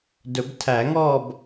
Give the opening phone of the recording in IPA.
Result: d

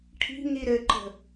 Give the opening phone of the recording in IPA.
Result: ʈʰ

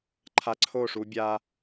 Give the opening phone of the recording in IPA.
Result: ǃʰ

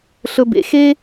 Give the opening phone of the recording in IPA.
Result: ɬ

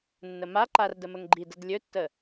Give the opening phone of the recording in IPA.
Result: nː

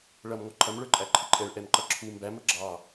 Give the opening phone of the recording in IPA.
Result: ɭ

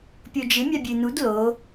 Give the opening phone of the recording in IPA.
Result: pʲ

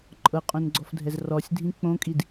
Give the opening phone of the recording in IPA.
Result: ǃʼ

